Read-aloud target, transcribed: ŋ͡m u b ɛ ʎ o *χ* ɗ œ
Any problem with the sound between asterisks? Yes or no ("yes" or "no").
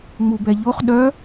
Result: no